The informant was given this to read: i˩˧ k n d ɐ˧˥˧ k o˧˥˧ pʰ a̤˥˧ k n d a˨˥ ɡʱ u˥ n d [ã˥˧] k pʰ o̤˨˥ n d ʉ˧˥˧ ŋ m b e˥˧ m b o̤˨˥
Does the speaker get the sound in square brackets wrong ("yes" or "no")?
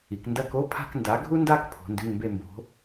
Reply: yes